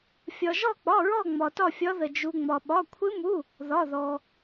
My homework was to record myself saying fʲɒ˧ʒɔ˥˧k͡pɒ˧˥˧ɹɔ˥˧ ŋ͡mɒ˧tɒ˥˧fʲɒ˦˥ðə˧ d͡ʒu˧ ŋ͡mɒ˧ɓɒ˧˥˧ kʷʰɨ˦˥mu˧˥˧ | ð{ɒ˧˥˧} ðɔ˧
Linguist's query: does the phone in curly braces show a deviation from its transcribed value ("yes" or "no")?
no